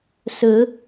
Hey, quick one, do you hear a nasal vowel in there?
no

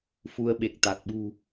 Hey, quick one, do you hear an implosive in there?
yes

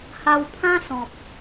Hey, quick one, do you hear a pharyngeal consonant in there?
no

